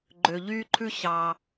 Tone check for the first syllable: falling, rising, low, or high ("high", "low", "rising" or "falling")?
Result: low